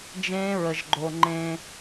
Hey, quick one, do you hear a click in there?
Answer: yes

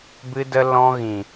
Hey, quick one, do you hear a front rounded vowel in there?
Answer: no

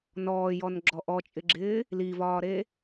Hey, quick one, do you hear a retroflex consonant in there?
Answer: no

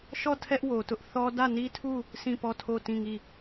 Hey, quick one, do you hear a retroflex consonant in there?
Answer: no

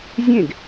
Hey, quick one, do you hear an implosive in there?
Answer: no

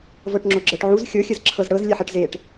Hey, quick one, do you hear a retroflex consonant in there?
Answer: yes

